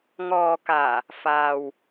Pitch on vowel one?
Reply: low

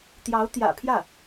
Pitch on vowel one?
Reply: rising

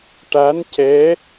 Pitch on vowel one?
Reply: rising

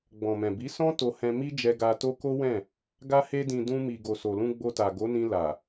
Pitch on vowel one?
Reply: low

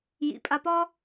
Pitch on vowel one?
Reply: low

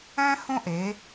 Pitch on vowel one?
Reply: high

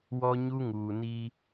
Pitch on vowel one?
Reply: high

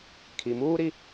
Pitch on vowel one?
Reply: low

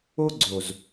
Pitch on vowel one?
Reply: high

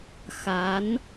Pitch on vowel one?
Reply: rising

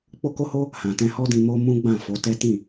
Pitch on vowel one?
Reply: high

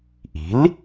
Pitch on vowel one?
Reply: rising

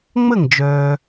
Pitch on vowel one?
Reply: falling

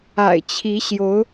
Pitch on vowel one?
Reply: low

